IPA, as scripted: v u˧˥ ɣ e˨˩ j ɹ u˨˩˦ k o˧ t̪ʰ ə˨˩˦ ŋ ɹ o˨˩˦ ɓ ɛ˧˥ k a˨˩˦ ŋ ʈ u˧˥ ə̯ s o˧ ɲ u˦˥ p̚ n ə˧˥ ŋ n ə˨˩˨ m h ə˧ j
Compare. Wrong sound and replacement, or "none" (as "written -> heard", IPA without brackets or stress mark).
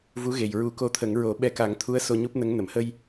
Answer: ʈ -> t̪ʰ